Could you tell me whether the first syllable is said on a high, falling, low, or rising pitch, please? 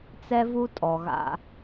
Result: high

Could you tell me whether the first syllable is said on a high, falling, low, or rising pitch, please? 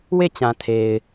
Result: falling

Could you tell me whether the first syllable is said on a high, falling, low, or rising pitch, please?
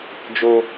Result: high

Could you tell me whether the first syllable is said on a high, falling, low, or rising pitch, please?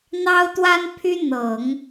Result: high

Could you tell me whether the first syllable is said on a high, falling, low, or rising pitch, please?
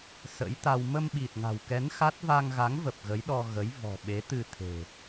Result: rising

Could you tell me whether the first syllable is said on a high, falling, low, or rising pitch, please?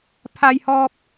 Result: high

